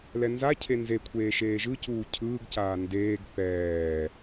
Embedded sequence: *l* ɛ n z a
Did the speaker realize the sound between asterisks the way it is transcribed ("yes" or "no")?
yes